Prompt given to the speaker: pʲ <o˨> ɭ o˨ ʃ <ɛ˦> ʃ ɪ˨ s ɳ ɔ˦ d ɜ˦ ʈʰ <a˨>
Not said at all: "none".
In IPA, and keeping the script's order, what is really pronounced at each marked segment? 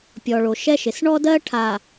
ɔ˨, ɛ˦, a˨

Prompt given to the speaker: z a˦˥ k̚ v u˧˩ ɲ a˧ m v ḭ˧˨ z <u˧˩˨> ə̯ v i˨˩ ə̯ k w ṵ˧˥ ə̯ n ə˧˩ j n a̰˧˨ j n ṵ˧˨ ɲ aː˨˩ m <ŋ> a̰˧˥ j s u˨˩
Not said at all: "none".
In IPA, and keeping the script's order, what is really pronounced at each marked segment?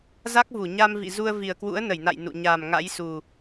u˧, ŋ

